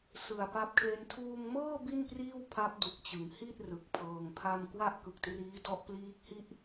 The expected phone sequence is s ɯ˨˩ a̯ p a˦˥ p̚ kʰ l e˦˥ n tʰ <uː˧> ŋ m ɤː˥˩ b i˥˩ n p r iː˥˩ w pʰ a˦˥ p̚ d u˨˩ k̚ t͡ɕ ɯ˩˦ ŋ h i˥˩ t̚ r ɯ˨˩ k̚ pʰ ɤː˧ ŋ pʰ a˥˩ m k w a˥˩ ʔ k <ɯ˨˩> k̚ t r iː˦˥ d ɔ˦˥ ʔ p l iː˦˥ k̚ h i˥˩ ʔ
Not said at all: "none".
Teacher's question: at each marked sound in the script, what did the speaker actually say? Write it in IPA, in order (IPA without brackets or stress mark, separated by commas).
uː˧, ɯ˨˩